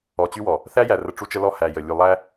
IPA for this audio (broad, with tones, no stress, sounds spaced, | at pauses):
ɔ˨ t͡ɕ y˦ w ɔ˨ | θ æ˦ j æ˨ r ə˦ ʈ͡ʂ u˦ t͡ʃ ə˦ l ɔ˦ h æ˨ j ə˨ lʲ u˨ lˠ æ˦